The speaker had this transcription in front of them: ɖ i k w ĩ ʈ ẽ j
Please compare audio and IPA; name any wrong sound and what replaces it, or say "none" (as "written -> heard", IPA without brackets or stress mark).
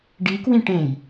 none